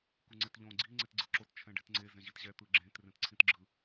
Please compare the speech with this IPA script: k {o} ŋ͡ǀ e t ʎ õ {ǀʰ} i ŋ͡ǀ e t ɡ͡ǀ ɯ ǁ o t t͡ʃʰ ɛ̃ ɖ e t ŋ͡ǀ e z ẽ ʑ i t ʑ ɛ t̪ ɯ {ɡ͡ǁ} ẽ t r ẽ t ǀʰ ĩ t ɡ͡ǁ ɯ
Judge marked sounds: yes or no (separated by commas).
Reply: no, no, yes